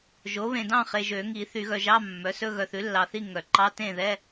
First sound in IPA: ʒ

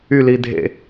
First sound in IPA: y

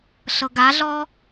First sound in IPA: ɬ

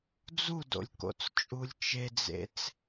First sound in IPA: d͡z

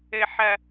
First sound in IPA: ɘ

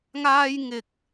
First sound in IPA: ŋ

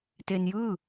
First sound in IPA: t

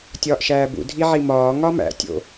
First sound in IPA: tʲ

